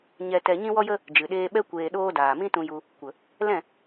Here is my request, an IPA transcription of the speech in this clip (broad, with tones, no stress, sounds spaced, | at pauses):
ɲ ɛ˧ t ɛ˧ ɲ ĩ˦ w ɔ˦ j ə˦ | d͡ʒ ɨ˨ ɗ eː˧ ɓ ɛ˦ kʷ eː˧ ɗ oː˦ d aː˨ m ĩ˦ t ũ˧ j u˧ | kʷ ə˨ | l ɛ̃˦˨